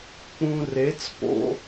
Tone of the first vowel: low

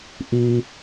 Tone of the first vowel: low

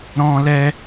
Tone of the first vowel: high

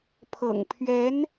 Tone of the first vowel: low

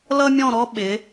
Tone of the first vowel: high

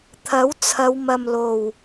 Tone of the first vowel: rising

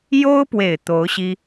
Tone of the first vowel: high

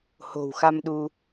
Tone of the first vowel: low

